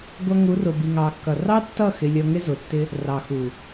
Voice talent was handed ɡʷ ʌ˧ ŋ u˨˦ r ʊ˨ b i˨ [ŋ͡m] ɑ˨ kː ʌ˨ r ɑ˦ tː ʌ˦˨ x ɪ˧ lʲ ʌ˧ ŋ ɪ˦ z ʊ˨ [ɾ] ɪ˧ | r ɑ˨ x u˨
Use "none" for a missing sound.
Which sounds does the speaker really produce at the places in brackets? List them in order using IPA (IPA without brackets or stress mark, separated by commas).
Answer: ŋ, tː